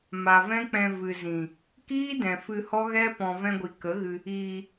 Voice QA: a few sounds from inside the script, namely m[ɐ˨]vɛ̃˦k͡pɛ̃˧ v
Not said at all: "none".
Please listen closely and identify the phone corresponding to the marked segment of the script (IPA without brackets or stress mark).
a˨